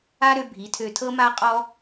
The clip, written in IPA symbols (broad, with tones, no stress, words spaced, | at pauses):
a˦ ɾø˦bʱi˨˦tʰø˧ tʰɤ˦ma˦qʼɔ˦